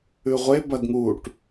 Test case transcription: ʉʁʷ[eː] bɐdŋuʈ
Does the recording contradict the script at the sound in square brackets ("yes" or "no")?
yes